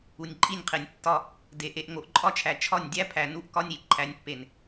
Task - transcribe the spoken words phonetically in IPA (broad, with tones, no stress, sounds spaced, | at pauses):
u˨ nʲ ǃʼ i˦˨ nʲ qʰ e˨ nʲ tː ɒ˦ | d e˨ ʔ e˨ ʔ ŋ o˨ ʔ ǃʼ ɒ˦ t͡ʃʰ æ˨ t͡ʃʰ ɒ˦˨ nʲ dʲ æ˦ pʰ æ˨ n u˦ ʔ k ɒ˦ nʲ i˨ ǃʰ æ˨ nʲ pː e˨ n